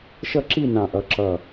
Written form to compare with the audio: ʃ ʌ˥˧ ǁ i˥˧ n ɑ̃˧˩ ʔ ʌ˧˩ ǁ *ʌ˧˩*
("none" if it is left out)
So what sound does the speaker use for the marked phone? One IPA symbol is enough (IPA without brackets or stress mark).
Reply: ʌ˧˩